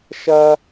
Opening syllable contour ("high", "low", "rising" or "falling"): high